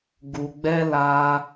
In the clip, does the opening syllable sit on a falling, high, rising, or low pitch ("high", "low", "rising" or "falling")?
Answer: low